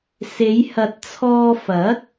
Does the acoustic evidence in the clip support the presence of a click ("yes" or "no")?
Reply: no